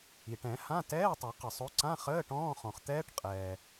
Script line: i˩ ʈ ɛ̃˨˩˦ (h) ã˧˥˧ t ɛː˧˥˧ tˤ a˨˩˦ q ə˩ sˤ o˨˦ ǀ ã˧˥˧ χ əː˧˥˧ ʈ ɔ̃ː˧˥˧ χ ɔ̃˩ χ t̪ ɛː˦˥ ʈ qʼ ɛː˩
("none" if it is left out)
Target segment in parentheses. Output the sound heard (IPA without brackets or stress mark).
h